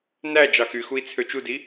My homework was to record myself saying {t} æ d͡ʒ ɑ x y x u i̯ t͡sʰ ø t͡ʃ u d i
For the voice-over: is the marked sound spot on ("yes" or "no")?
no